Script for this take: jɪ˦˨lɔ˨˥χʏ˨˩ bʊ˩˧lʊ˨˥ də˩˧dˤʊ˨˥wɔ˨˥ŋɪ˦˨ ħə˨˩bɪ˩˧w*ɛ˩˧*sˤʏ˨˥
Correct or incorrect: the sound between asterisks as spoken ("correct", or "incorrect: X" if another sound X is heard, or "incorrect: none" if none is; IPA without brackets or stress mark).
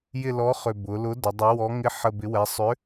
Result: correct